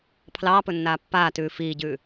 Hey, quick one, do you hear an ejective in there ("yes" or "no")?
no